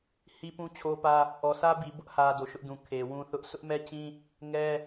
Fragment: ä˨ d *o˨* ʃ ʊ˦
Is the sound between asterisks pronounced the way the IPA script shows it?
yes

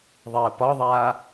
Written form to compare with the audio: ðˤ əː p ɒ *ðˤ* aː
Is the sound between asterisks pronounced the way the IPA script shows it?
yes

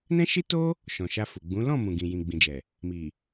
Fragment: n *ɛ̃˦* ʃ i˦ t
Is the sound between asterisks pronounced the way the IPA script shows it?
yes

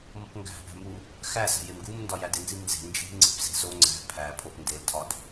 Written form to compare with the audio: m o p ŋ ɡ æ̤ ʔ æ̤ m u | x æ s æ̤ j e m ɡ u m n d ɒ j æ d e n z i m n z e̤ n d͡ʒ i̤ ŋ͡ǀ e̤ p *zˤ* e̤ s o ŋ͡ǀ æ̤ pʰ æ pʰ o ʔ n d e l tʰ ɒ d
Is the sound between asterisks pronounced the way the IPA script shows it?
no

